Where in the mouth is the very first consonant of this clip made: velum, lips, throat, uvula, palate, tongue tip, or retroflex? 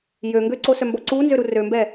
palate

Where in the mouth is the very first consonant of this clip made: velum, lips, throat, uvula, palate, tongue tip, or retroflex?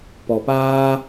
lips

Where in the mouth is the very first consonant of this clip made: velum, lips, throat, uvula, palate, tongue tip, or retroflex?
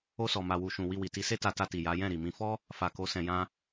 tongue tip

